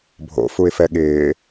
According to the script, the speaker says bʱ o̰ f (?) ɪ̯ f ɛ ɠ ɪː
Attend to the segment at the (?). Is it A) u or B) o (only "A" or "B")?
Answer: A